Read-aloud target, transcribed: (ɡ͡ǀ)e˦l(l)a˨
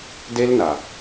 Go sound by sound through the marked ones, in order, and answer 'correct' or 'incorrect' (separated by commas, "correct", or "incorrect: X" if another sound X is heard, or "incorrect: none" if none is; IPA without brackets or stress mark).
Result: incorrect: d, incorrect: n